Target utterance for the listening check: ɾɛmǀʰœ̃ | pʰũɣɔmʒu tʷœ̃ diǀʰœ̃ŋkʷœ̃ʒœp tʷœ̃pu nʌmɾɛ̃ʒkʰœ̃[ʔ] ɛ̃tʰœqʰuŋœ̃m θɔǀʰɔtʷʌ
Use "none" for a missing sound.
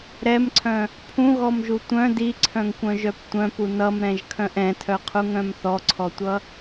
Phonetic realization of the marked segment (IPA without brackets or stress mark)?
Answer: ʔ